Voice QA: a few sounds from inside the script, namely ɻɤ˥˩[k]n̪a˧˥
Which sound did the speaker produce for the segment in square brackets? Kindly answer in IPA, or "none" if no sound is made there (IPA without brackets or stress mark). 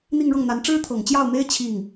ŋ